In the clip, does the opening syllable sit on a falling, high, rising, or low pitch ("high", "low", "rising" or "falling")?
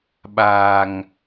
low